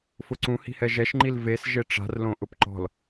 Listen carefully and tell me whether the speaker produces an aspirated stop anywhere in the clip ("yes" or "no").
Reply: no